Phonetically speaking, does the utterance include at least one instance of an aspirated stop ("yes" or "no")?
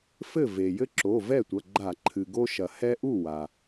yes